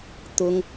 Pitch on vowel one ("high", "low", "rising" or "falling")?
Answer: high